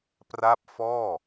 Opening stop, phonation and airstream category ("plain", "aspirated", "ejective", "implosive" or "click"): plain